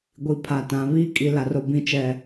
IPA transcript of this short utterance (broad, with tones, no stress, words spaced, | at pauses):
ɡʷi˨pʰa˨ tã˨ βiː˦kʼi˨ la˨ro˨ bĩ˨t͡ʃɛ˨